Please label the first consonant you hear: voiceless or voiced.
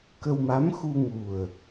voiceless